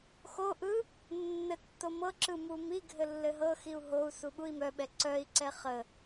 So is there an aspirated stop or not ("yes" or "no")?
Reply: no